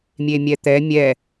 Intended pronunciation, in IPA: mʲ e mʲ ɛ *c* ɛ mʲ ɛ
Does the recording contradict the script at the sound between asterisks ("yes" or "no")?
yes